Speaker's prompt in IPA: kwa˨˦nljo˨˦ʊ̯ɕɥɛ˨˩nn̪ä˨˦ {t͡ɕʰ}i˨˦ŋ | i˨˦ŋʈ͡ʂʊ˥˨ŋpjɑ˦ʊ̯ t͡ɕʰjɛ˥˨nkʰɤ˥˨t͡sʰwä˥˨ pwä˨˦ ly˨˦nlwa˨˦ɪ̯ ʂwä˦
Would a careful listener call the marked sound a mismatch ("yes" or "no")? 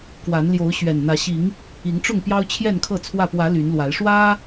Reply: yes